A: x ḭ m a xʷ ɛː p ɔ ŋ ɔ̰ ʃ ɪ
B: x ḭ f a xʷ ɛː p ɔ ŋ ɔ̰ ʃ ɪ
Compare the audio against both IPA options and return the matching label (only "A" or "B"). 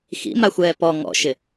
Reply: A